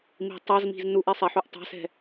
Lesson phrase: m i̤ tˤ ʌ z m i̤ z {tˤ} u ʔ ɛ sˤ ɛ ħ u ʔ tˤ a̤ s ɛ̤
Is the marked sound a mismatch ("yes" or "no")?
yes